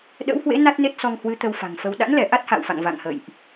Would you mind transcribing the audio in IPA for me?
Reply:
ɗ ə̰˧˥ w h w ḛ˧˥ n a˦˥ t̚ n e˦˥ t̚ s ɔ˧ ŋ h w ɨ˨˦ t̪ ə˧ w f a̤˨˩ ŋ f ə˧ w ɗ a̰˧˥ n l ɛ˧˩ ʔ a˦˥ t̚ h a̰ː˧˨ w f a̰˧˨ ŋ v a̰˧˨ ŋ h ə̰˧˨ j ʔ

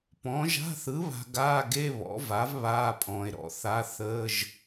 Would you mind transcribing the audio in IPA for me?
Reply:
p ɔ̃˩˥ ʒ a̤˧˥˧ θ ɯ˩˥ β a̤˨ ɡ aː˧˥˧ ɡ e˧˥˧ β ɔ̰˩˥ v a˩˥ v β aː˧˥˧ pʼ ɔ̃ː˨ e̯ ɾ ɔ̰˩˥ θ a˧˥˧ θ əː˧˥˧ ʒ

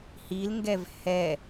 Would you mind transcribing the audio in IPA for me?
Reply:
h i l ŋ ɡ ɛ v h ɛ

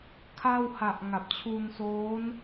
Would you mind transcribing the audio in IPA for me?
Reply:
kʰ a˥˩ w h a˨˩ ʔ ŋ a˨˩ p̚ t͡ɕʰ u˧ n s oː˦˥ n

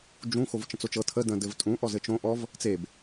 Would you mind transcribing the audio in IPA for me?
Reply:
d͡ʒ ũ x o v t͡ʃ ə̃ t͡s o t͡ʃ ɤ tʰ ə d ə̃ d ɘ v tʼ ũ ʔ ɔ z ɘ t͡ʃ õ ʔ ɔ v | t͡s e b

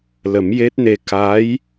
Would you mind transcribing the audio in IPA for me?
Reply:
l ə˨˩˦ m j e˦˥ t̚ n e˧ k a˧˥ j

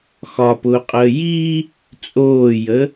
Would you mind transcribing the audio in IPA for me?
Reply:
x ɒ p ʊː qʼ əː j i | t͡sʼ oː j ə

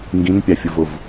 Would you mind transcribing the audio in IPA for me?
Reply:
ŋ ɡ ĩ n pʲ ɑ fʲ ʊ v ʊ v

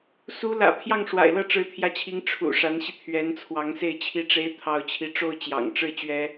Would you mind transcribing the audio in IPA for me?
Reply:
s u˧˥ l ä̰˨˩ pʰ j ɑ˥˩ ŋ ʂ w a̰˨˩ ɪ̯ l ɤ˥˩ ʈ͡ʂ ɻ̩˧˥ t̪ʰ j ä˧˥ t͡ɕʰ i˧˥ ŋ ʈ͡ʂʰ ṵ˨˩ ʂ a˧˥ n ɕ i˧ t̪ʰ ɥ ɛ˧˥ n t͡sʰ w ɑ˧˥ ŋ s e˥˩ ɪ̯ t͡ɕʰ i˥ ʈ͡ʂ e˥ ɪ̯ t̪ʰ ɑ˥˧ ʊ̯ t͡ɕʰ i˥˧ ʈ͡ʂ o˥˩ ʊ̯ t͡ɕ j ɑ̰˨˩ ŋ ʈ͡ʂ ɻ̩˥˩ t͡ɕ ɥ ɛ˥

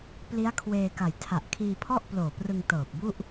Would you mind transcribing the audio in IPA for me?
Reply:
p l i˦˥ a̯ kʰ w eː˧ k a˨˩ j tʰ a˨˩ ʔ kʰ iː˧ pʰ ɔ˥˩ ʔ p l oː˨˩ p r ɯ˧ ŋ t ɤː˨˩ p̚ b u˥˩ ʔ

